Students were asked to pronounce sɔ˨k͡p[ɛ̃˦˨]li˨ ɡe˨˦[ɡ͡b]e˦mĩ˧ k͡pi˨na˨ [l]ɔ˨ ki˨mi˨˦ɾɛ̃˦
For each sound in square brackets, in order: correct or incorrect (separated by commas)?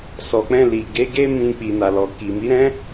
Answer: incorrect, incorrect, correct